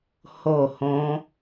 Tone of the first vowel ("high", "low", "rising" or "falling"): falling